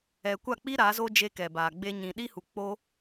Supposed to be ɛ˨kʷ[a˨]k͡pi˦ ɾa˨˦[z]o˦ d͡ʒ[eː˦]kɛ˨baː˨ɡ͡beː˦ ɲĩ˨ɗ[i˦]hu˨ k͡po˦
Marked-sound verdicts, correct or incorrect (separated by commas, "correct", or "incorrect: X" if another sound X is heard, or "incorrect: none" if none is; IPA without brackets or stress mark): incorrect: a˦˨, correct, incorrect: e˦, correct